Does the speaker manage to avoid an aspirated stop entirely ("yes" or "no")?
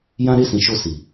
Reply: yes